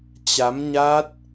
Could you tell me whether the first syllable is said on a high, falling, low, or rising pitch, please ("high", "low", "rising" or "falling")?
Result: rising